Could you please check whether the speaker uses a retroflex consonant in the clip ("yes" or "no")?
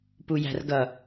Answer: no